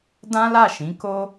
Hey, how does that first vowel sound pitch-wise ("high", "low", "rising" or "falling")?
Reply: high